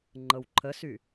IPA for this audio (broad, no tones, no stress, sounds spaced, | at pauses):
ŋ͡ǃ ɤ w ǃʰ ə s y